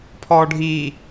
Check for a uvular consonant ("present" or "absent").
absent